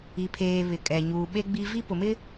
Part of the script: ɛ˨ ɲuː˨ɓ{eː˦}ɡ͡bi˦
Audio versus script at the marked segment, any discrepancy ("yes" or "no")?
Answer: yes